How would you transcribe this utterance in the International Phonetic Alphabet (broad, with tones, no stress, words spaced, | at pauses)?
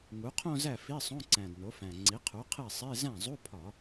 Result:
ŋu˩˥qʰõ˥˧zæ˥˩ fi˧˥˧sˤõ˧˥˧ǀæ̃˨˩d no˩˥fæ̃˨˩ ŋ͡ǀi˩˥qʰu˩˥qʰe˥˩sˤe˧˥˧ zæ̃˥˩zˤu˧˥˧pʰɒ˧˩˧